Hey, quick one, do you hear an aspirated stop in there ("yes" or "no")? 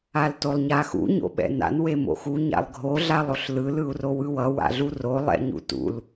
no